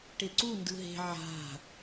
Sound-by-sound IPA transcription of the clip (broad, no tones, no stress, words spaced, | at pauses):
ʈeǀu ndɯɦe̤ ʕa̤